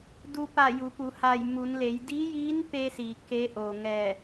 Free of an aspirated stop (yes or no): yes